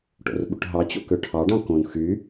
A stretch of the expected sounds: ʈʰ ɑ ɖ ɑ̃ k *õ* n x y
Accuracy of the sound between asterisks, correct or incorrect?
correct